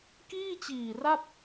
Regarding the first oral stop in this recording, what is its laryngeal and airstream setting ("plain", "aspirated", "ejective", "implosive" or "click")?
plain